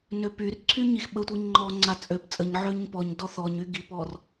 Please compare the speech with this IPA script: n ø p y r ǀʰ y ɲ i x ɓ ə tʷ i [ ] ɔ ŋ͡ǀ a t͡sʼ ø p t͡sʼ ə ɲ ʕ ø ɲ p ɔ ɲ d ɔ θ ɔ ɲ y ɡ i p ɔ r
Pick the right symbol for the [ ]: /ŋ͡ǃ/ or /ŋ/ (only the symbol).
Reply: ŋ͡ǃ